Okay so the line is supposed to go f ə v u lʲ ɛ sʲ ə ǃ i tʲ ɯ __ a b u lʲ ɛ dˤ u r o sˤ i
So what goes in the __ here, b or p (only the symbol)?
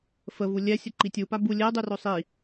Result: p